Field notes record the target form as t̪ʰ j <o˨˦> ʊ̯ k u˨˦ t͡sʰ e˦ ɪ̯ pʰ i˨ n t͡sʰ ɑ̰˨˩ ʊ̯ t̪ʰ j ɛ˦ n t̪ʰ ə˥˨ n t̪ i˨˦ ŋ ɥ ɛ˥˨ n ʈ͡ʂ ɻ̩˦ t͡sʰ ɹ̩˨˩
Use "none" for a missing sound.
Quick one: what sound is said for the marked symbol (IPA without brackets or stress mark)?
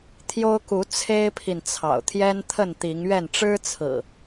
o˦